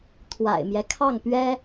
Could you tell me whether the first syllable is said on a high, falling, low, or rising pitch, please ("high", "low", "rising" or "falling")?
low